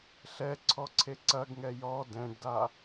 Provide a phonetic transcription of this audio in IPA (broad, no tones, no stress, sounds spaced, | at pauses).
ɬ ɛ ǀʰ ɔ ǀʰ e ǀ ɐ ɡ ŋ ɛ j ɔ d ɛ̃ ɖ d a